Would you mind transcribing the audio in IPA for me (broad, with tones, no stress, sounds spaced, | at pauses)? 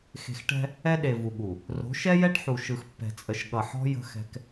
x e̤˨ x ʈ ɛ̤˦ | ɛ˦ ɗ e˨ v u˨ ɠ u˨ | r o̤˨˦ ʃ ɛ˦ j ɛ˦ ʈ ħ u˨ ʃ ɯ˨ x pː ɛ̤˨ t͡sʼ ə˨ ʃ ɠ ʌ˨ ħ ɔ̤˦ j ə̤˦ x ɛ̤˦ k